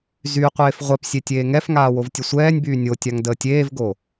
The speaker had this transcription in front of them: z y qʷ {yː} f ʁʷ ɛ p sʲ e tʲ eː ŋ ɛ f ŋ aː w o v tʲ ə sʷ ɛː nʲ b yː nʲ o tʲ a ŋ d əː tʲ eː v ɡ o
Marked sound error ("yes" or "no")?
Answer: yes